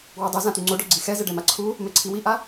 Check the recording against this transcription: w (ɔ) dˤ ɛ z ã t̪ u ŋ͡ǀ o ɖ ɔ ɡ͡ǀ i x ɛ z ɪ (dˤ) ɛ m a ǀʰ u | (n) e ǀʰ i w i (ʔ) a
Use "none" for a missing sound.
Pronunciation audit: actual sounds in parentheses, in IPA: ɔ, ɖ, m, ʔ

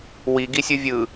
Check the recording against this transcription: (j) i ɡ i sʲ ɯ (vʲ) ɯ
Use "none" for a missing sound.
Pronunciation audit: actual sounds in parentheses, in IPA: w, vʲ

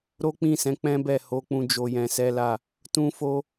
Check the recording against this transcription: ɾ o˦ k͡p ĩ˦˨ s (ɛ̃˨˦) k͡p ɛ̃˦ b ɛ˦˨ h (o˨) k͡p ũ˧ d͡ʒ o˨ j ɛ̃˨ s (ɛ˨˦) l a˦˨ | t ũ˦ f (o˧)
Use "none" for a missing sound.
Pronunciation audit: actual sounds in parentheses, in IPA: ɛ̃˨˦, o˨˦, ɛ˨˦, o˦

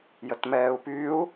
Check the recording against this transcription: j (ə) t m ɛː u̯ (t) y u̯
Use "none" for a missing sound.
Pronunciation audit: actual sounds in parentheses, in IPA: ə, p

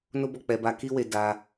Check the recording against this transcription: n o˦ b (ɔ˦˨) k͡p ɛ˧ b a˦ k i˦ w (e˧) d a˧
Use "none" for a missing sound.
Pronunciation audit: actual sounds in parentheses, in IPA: ɔ˦˨, e˧

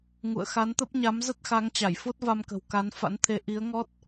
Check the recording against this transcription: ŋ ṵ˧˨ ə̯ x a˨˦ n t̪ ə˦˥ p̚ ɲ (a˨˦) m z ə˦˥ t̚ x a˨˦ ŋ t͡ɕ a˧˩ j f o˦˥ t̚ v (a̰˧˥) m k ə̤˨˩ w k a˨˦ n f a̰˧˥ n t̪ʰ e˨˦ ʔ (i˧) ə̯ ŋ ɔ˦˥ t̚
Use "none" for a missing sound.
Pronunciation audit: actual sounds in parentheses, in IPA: a˨˦, a˧, i˨˦

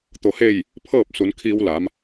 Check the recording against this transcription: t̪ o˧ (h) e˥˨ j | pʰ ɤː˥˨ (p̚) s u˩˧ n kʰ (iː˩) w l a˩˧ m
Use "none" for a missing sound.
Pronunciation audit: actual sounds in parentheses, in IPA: h, p̚, iː˧

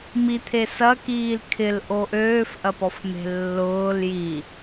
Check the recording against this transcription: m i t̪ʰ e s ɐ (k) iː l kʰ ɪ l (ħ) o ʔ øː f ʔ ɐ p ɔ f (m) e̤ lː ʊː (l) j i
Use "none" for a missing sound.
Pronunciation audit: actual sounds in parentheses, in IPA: k, ʔ, m, l

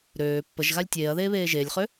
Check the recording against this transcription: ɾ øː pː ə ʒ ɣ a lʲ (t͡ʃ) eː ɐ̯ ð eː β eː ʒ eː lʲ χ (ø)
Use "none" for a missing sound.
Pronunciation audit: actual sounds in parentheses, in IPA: tʲ, ø

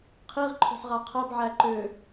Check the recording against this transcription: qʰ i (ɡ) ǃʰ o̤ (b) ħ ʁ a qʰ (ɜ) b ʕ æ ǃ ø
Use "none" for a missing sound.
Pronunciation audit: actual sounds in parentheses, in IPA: ʁ, none, ɜ

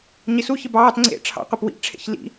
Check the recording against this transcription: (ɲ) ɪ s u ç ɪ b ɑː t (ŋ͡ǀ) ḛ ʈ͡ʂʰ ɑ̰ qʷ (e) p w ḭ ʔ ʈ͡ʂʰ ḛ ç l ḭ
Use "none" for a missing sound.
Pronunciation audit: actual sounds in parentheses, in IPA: ɲ, ŋ͡ǀ, e

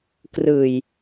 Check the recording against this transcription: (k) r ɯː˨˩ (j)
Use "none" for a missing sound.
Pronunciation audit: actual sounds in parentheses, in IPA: k, j

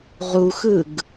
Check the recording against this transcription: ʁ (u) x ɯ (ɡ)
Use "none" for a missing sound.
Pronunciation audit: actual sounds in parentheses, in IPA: u, ɡ

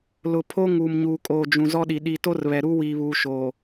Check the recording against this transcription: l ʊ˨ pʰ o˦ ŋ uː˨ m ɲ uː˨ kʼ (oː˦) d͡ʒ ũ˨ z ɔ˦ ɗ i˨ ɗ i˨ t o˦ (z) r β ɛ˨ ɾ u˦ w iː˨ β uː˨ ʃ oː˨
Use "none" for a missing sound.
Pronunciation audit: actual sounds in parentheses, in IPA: oː˨, none

